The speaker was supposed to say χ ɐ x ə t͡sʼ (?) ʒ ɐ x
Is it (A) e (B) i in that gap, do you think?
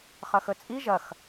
B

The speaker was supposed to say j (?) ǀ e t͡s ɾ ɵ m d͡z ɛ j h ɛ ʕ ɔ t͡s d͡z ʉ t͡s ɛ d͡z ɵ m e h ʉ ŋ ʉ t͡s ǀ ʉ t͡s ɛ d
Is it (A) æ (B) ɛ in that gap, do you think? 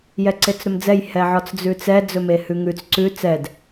B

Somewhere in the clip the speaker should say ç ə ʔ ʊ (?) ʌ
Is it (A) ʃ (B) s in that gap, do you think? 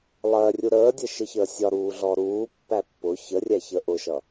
A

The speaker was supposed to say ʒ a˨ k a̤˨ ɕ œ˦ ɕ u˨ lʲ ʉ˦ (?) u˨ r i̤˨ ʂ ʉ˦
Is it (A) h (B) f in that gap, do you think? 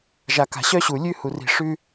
A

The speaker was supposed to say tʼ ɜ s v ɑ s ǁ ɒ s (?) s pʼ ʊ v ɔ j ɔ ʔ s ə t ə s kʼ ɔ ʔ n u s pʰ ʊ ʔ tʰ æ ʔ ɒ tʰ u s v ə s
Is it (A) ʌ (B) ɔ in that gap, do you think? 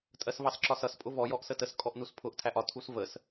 A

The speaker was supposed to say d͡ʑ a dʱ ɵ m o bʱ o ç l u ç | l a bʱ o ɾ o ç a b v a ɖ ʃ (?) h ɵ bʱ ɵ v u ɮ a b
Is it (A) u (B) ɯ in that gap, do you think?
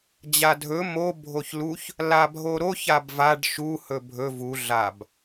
A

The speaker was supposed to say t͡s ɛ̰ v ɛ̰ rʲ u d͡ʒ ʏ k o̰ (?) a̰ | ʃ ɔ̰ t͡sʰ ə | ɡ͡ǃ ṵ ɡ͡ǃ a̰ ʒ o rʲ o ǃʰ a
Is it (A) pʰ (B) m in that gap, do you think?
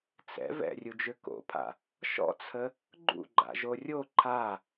A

